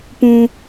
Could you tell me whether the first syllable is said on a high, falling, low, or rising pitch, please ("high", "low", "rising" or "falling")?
high